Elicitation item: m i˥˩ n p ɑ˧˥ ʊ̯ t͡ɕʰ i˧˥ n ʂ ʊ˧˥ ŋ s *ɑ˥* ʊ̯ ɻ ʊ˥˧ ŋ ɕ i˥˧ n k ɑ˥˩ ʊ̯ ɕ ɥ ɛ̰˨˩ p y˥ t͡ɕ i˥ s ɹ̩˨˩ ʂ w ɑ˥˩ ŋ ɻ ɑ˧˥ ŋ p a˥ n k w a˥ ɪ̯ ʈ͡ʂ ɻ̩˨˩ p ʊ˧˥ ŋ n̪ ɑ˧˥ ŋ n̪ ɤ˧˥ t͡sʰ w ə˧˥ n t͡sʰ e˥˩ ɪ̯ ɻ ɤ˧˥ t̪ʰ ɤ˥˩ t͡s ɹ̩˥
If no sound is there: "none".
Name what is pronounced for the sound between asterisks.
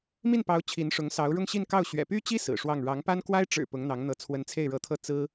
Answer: ɑ˧˥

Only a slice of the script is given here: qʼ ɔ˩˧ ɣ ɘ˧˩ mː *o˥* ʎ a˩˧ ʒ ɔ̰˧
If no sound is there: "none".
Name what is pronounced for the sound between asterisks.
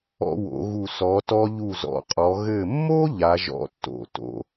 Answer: o˥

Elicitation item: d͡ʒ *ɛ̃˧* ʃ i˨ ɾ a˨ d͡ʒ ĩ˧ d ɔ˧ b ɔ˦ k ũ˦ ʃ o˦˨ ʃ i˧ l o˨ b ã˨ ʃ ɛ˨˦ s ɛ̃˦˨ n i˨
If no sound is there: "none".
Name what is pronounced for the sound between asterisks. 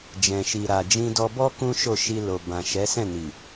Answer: ɛ̃˨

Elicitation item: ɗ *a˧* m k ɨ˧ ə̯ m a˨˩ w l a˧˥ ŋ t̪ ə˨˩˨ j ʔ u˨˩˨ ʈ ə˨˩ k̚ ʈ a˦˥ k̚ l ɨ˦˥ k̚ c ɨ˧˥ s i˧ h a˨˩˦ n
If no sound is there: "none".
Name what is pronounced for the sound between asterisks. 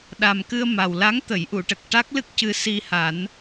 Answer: a˨˩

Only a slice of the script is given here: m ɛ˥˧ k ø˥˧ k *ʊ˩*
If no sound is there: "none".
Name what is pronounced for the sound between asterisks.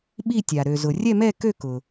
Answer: ʊ˩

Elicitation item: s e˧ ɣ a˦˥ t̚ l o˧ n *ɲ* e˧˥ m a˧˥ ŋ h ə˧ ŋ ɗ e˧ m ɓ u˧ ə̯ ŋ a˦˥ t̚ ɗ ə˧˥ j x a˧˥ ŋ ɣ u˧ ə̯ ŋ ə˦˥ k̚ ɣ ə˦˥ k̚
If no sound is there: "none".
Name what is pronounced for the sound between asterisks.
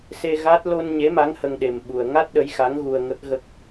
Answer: ɲ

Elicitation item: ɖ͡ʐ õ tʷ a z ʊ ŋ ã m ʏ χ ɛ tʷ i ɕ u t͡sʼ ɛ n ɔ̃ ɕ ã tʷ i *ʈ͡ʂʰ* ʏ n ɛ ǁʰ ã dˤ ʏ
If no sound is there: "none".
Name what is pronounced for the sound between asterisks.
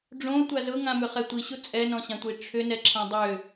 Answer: ʈ͡ʂʰ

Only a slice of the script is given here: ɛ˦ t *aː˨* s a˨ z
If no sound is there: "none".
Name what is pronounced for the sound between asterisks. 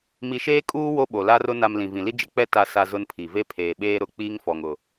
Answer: a˨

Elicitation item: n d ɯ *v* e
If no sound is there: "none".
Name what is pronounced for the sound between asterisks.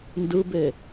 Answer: b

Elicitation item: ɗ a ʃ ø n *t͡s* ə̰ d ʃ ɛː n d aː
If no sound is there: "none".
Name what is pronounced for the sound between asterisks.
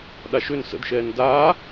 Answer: s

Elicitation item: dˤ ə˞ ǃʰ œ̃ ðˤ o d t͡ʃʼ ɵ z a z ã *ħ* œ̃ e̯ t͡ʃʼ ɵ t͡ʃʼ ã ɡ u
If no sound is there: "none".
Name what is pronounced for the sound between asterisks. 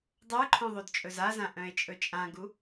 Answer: ʔ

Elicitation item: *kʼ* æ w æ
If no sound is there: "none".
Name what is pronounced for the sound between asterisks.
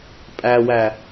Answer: pʼ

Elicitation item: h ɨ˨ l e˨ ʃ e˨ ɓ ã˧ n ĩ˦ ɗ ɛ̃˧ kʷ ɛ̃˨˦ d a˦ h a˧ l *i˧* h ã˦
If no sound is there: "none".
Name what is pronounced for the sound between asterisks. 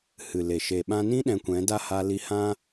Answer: i˧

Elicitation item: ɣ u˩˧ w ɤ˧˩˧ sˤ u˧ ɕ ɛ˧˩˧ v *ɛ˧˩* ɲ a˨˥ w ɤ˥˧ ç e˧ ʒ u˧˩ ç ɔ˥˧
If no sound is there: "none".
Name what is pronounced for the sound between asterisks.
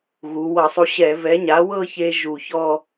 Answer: ɛ˨˥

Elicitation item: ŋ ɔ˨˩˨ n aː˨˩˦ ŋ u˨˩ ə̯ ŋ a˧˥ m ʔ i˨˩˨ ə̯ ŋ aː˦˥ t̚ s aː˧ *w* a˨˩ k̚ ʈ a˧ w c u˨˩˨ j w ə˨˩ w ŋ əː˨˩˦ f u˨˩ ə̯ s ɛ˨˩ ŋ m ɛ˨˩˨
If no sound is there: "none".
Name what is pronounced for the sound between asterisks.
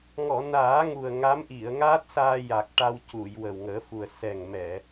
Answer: j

